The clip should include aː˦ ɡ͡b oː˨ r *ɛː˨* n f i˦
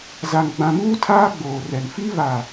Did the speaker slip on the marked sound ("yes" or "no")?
yes